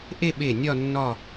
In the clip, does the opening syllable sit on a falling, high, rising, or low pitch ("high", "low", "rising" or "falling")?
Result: falling